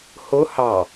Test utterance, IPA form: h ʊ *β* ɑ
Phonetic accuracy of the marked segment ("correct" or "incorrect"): incorrect